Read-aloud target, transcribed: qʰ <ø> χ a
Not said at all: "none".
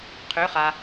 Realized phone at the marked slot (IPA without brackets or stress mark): ø